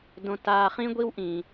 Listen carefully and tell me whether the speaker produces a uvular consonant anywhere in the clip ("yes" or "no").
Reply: yes